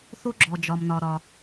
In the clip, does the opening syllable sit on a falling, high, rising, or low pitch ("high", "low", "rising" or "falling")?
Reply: high